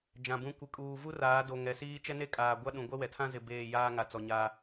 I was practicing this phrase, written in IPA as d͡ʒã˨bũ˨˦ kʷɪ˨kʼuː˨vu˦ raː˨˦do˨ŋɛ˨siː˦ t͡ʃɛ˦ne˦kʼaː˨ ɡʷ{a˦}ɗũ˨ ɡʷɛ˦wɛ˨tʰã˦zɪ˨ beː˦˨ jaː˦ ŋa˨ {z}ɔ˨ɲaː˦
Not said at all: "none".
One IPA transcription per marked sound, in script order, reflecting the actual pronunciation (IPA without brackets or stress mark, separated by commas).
a˦, t͡s